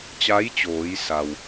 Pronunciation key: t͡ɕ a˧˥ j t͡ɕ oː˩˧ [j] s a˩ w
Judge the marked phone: correct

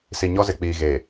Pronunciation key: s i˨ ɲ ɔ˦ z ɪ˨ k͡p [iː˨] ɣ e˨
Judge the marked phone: correct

